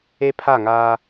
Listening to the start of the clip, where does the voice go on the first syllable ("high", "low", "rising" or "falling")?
high